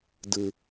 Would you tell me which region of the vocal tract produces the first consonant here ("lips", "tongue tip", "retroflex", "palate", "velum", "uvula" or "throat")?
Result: tongue tip